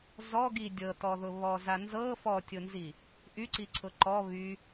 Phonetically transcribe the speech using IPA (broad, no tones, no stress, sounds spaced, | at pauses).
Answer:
z ɔ ɡ i dʲ ɤ t ɔ ð ʊ β ɔ z a n z ɤ f ɔ tʲ ʊ n z i | ʔ y ǀ i ǀʰ ʊ ǃ ɔ β y